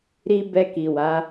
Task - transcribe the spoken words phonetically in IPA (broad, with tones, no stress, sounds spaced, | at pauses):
ɾ i˦ b ɛ˧ k i˨ w a˨˦